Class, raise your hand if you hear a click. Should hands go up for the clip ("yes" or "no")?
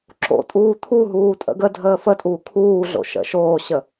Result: yes